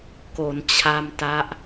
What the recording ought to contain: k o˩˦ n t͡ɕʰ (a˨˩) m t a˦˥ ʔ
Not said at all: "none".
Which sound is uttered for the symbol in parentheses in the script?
a˧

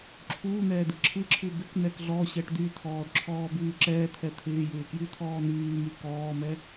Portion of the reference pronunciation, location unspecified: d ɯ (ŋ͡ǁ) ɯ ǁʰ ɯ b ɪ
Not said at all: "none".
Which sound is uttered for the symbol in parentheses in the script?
ǁʰ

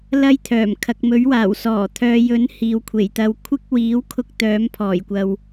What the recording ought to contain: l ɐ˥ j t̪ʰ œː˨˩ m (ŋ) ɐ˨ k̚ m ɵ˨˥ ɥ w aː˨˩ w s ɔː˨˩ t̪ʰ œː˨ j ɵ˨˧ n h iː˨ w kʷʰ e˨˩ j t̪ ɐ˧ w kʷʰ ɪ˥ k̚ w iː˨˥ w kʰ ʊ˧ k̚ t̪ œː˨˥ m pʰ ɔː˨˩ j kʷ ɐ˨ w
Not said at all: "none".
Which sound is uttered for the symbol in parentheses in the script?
kʰ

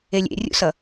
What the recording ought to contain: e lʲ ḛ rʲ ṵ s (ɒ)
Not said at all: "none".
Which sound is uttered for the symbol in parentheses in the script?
ʌ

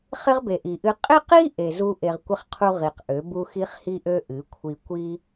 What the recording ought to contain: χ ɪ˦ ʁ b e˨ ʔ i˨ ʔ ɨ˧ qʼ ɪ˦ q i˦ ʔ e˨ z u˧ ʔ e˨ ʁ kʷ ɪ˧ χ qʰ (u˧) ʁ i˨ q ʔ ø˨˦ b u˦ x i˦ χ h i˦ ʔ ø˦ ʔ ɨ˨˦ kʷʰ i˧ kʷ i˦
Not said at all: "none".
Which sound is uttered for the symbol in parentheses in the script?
u˧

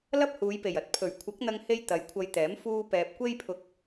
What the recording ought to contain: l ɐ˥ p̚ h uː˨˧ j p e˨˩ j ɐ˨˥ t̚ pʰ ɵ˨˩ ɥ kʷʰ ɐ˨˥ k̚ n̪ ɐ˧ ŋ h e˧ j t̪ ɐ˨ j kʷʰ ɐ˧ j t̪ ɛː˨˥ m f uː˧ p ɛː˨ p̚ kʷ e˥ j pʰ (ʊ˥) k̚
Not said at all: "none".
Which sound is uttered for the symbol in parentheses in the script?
ʊ˧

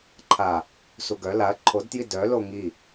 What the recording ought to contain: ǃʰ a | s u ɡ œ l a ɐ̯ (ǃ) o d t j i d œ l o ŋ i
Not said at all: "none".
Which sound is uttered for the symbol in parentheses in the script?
ǃʰ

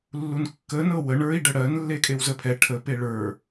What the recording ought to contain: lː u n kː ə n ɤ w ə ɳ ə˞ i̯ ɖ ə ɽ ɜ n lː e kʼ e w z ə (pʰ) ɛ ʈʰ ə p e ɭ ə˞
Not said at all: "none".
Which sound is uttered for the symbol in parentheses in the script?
pʰ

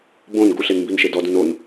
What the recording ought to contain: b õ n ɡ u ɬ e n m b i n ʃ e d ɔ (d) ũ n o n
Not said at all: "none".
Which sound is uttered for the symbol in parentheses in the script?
d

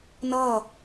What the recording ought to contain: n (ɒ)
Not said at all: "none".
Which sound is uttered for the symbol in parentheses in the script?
ʌ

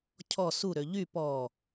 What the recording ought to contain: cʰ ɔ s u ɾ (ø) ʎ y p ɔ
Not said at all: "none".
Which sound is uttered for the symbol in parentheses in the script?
ø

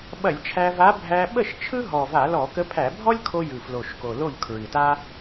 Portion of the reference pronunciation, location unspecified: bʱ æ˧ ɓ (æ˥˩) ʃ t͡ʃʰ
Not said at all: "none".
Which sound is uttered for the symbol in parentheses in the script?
ə˥˩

